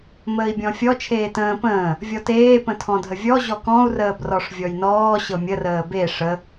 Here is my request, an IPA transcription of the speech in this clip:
m əː i̯ bʲ ɔ̃ fʲ ɔ t͡ʃʰ eː t ə̃ː p ə̃ː | vʲ ɔ t eː p ə̃ tʰ ɔ̃ dʱ ə vʲ ɔ ʑ ɔ k ɔ̃ u̯ r əː b r ɔ ʂ vʲ ɔ j n ɔː ɕ ɤ mʲ ə r əː b e ʂ ə

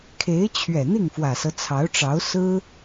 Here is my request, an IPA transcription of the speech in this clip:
kʰ e˧˥ ɪ̯ t͡ɕʰ ɥ ɛ˨˩ n̪ i˥˩ ŋ f w ä˨˩ s ɤ˦ t͡sʰ ɑ˧˥ ʊ̯ ʈ͡ʂ ɑ˧˥ ʊ̯ s ɹ̩˥

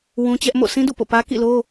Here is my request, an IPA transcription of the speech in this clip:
w ũ˦ t͡ɕ ɛ˦ ʔ m o̰˦˨ sʰ ĩ˦ d ṵ˦˨ p o̰˦˨ p ä˦ k ḭ˦˨ l o˦

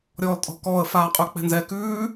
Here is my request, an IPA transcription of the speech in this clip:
ɾʲ ɔː l tʼ ɔ̤ k ɔː ə̯ f aː qʼ ʉ k͡p ɛ̤ n z ɛ k ʉː

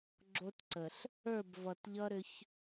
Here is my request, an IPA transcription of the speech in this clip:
ɡ͡ǁ o˦ t ǀ ə˨ ɬ | ə˞˦˨ b v ʌ˨ t ʎ ʌ˦ ɾ ʏ˦ ç

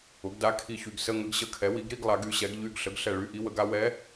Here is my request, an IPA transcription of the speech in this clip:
ʊ˩˥ ɡ d a˧˥ kʰ i˧˩ ç y˧˩ ɡ s ə˧˥˧ ŋ ə˧˥ ɡ ɕ ə˧˩ kʰ ɛ˩˥ w i˩˥ ɡ ɾ i˧˥˧ ɡ lˠ a˩˥ ɡ y˩˥ ɕ ɛ˩˥ ɡ ʎ y˧˥˧ ɡ ɬ ə˩˥ ɡ ɬ ɛ˧˩ ɭ y˧˥˧ ʔ i˧˥ w ə˩˥ ɡ a˧˥ w ɛ˧˥

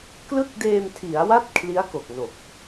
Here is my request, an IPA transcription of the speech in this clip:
k l ɯ˥˩ k̚ d eː˧ m tʰ i˩˦ a̯ w a˥˩ t̚ kʰ l i˦˥ a̯ k o˨˩ k̚ n o˨˩ k̚

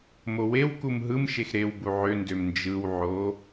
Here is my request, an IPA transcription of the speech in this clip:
m o w e w k u m ɦ ɯ m ʃ e x ɾ e w b u ʕ ø n d ø m n d͡ʒ ɯ w ʕ o

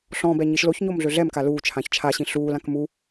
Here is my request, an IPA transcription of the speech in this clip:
ɬ ɔ̃ b ɛ ɲ i ʃ l o ç ɲ o m ɮ ø ɮ ɛ m k a l uː t͡ʃʰ ã ç t͡ʃʰ a ɕ ĩ ɬ uː l ã k m u

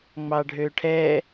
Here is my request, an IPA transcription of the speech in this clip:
ŋ͡m ɑ ɖʱ ø ʈʰ ɛ

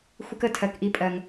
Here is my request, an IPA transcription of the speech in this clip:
xʷ ɪ˦ k ə˨˦ tʰ ɜ˨ k ʔ i˦ pʼ ɜ˨ ŋ

